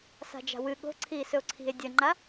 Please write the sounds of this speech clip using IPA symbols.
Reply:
s a̤ d͡ʒ a̤ w ɨ ɠ o̤ ǀʰ iː s ɵ o̯ ǀʰ i̤ e̯ dʲ ɐ ŋ͡ǃ a

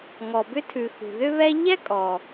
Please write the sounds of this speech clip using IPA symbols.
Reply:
ŋ ɔ˩ b ʏ˦ tʰ ʉ˩ x ṳ˩ ð ʏ˥ β ɛ˥ ʎ ɛ˥ kʼ ɔ˩

